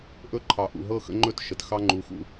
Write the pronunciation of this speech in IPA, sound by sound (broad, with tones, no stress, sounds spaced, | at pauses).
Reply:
ʔ ɵ˦ ǃʰ ɑ˨ ʔ ṵ˨ ɦ ɤ˦˨ x ə̰˦ ŋ͡ǃ ɵ˦ t ʃ ə˨ t x ɑ˦ ŋ͡ǃ u˨˦ x ṵ˦˨